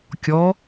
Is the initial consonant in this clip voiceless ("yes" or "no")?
yes